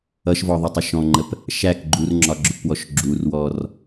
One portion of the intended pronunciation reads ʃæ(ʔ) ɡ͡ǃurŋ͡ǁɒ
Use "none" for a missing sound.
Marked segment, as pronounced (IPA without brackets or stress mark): k